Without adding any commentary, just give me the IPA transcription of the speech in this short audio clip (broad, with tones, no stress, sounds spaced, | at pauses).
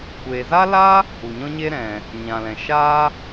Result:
kʷ eː˨ z a˦ l a˦ | u˨ ɲ ɔ̃˦ ɲ eː˦ ɾ ɛ̃˨ | ɲ ã˨ l ɛ̃˨ ʃ aː˦